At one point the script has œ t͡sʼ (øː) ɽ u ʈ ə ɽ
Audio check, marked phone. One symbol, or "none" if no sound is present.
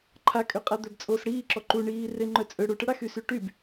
ø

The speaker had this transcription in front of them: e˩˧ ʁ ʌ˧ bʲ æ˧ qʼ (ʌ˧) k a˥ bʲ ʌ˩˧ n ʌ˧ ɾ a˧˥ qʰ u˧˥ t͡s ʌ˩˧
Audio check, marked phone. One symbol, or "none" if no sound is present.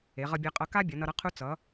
ʌ˧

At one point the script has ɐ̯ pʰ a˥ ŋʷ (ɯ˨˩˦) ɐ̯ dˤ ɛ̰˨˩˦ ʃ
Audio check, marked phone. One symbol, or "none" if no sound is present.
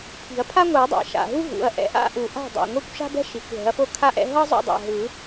ɯ˨˩˦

